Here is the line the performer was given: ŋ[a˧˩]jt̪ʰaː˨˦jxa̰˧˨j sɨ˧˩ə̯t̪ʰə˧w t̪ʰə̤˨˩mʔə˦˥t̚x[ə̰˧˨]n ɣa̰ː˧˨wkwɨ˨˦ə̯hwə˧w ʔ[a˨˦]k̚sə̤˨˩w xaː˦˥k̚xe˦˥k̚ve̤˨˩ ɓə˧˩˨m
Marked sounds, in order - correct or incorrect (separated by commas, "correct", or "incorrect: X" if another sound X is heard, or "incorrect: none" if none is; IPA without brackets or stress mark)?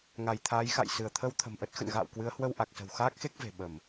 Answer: correct, correct, incorrect: a˨˩